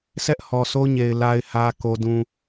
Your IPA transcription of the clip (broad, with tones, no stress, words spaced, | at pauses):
sʰɛ˦ʔ hɔ˨so˦ɲe˨ɪ̯ la˨ɪ̯hä˨ ko˦dũ˦